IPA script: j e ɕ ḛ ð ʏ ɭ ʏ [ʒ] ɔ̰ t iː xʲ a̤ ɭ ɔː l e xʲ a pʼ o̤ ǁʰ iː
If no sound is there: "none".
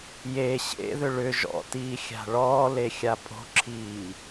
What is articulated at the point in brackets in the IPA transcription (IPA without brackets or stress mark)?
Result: ʒ